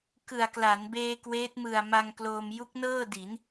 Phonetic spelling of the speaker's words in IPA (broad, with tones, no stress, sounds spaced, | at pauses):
k ɯ˨˩ a̯ k l a˩˦ n b eː˧ k w eː˦˥ t̚ m ɯ˨˩ a̯ m a˧ ŋ k l oː˧ m j u˦˥ k̚ n ɤː˥˩ d i˩˦ n